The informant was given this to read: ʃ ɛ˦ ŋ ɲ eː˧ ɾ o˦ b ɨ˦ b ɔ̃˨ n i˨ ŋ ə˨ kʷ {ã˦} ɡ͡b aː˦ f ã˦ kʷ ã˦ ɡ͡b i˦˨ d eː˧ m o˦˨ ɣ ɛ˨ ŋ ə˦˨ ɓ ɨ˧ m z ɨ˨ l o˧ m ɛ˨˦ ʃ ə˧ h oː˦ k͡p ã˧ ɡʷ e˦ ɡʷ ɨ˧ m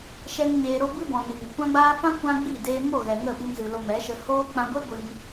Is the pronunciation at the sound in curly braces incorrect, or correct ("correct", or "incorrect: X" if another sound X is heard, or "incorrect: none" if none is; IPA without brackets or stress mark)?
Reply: correct